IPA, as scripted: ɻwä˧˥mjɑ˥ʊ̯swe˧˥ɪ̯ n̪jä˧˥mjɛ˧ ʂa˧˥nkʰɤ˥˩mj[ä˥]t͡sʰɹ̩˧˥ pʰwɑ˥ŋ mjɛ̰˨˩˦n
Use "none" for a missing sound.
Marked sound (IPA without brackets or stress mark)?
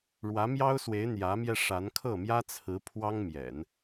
ä˥